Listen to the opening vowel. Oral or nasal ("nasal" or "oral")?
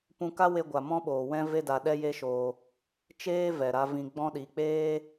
nasal